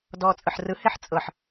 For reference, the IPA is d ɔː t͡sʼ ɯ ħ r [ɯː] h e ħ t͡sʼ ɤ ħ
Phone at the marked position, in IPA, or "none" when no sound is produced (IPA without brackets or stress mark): ɯ